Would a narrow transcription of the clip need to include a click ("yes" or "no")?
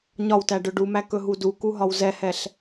no